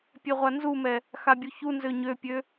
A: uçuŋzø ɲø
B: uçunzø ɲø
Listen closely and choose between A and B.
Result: B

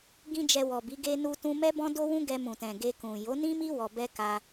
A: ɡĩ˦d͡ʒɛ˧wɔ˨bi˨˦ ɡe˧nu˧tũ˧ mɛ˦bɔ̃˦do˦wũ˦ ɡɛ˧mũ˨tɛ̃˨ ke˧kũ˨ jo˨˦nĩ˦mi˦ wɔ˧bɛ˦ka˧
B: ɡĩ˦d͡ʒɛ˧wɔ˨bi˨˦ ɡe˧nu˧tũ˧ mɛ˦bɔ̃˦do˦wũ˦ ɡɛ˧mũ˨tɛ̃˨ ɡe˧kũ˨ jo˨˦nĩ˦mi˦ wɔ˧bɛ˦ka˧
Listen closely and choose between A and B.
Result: B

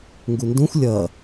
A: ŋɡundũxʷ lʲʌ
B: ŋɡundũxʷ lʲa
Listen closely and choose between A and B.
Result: A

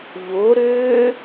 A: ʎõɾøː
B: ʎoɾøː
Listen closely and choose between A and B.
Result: B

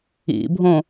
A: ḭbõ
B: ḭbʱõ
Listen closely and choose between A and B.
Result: B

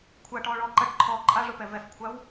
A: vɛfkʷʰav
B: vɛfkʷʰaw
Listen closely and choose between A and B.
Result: B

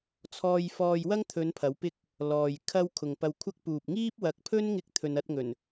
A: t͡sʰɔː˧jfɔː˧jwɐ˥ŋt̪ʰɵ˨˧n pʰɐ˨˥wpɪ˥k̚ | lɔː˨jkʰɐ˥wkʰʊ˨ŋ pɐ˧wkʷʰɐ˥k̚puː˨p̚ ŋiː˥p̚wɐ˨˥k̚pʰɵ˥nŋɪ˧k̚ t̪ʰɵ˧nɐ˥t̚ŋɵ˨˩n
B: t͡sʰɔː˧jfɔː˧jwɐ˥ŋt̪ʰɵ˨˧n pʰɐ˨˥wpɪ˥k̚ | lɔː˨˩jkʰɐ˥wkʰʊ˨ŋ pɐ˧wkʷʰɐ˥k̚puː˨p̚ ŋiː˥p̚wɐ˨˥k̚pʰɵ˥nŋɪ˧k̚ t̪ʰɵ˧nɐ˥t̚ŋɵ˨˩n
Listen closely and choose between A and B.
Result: A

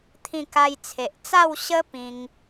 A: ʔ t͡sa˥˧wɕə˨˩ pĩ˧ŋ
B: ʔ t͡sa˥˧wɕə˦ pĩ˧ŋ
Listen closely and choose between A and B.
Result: B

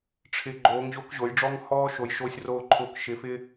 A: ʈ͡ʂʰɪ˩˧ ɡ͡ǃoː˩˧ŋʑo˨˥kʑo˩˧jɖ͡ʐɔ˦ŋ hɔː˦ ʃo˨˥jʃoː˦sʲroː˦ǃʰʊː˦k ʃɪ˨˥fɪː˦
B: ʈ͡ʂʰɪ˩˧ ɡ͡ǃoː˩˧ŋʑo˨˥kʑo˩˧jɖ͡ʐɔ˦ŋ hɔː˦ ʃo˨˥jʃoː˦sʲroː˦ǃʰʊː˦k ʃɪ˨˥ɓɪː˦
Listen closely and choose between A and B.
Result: A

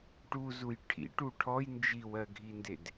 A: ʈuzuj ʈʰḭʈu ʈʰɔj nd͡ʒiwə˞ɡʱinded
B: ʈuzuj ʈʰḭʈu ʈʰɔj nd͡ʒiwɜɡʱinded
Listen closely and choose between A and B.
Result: B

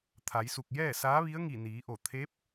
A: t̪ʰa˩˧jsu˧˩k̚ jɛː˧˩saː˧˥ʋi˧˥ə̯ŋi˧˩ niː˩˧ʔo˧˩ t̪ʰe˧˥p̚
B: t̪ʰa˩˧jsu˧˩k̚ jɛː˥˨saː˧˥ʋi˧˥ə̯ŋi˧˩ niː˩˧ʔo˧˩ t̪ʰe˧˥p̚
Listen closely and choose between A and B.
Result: B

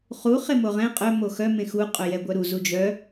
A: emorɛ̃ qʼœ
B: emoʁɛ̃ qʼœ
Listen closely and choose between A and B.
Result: B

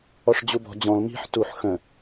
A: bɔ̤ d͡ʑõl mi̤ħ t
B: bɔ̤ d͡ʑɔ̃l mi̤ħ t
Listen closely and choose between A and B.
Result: B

